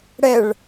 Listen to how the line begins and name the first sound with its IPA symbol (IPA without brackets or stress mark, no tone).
ɽ